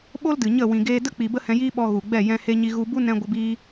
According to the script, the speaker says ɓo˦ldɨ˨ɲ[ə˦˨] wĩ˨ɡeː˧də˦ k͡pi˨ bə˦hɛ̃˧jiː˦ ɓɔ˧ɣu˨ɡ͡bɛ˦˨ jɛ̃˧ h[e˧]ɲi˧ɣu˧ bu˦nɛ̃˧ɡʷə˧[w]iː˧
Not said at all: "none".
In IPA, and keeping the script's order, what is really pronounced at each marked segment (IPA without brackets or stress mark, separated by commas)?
ə˦˨, e˧, b